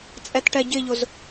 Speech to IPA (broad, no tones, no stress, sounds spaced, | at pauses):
t͡sʼ ɛ t ʈ ɛ ɟ ɪ ʎ ʊ z